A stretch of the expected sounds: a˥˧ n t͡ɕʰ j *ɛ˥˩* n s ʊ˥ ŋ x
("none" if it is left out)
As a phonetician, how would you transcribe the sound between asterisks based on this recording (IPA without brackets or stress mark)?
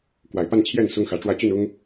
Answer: ɛ˥˩